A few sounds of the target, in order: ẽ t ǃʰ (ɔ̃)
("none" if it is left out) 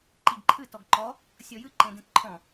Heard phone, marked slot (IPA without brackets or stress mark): ɔ̃